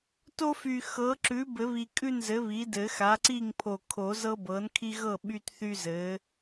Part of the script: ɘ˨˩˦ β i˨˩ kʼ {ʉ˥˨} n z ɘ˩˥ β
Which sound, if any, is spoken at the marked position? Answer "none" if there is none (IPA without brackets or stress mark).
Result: ʉ˥˨